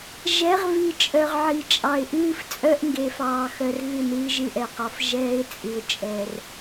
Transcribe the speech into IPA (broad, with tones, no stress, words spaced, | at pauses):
ʒɛ˨˦ʁvi˨t͡ʃʼœ˨ʁ ʕi˨t͡ʃʼɑ˨ɪ̯ ʔɨː˦ft͡sʼœ˦ʔ ŋɡe˨fɑː˨xœ˨r ɣɨ˦˨nɨː˦ʒɨ˦ʔɛ˨ qɒ˨f ʒɛː˦ɪ̯t͡sʼɨ˨ʊ̯t͡ʃʼɛ˨r